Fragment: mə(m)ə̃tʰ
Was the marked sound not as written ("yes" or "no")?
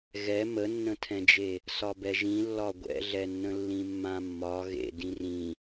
yes